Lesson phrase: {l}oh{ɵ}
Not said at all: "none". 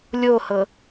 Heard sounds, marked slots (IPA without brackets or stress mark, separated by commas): lʲ, ɤ